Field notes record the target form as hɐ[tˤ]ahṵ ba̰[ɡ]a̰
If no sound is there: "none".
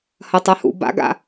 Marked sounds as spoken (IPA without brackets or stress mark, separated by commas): tˤ, ɡ